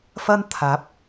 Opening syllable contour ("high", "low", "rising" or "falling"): high